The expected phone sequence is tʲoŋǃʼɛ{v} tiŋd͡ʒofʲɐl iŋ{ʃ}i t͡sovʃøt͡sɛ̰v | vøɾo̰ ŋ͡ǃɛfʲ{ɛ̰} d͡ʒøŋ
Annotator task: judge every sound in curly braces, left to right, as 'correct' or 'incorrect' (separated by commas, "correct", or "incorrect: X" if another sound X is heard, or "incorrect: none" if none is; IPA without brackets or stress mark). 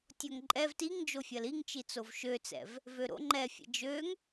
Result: correct, incorrect: t͡ʃ, correct